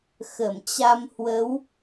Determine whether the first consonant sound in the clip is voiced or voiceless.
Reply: voiceless